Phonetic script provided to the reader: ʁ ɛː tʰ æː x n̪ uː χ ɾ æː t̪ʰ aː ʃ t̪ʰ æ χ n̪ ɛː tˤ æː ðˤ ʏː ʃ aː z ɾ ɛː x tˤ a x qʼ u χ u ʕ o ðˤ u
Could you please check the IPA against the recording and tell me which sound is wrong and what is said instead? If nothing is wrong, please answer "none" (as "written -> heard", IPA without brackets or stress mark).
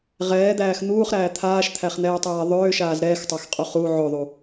tʰ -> d̪